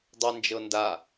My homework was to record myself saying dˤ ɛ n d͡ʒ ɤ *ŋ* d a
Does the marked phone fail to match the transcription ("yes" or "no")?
yes